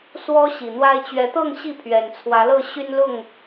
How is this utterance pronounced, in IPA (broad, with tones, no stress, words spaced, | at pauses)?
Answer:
swɔ˦ ɕi˨˩n̪wa˦ɪ̯ t͡ɕɥɛ˨˦t̪ɤ˥˨ŋ ɕi˥˨ pʰɥɛ˨˩nt͡sʰwä˨˦lɤ˥˨ ɕy˦nlʊ˥˨ŋ